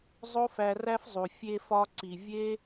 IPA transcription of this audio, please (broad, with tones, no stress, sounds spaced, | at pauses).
zˤ o˦ f æ˧ r æ˦ f zˤ u˨ fʲ e˧ f ɒ˧ ǀ i˨ vʲ e˦